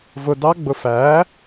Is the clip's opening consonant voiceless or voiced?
voiced